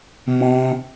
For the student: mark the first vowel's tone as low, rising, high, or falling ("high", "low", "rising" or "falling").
high